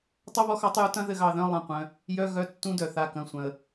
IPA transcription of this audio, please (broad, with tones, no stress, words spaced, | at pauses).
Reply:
tˤɐ˦˥βɔ˨˥xɑ˨˥tˤju˨˥ tɐ̃˦˥ðɘ˦˨ɣɑ˦˨ðœ̃˧˥˧ lˠɐ̃˦˨qʷœ̃˩˧˩ | jœ˧˥˧ ɣœ˧˥˧tːũ˦˥dœ˩ θa˩˧˩kɐ̃˩˧˩ sʷœ̃˩ə̯